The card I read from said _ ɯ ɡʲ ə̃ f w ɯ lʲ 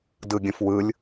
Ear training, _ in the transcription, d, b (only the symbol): d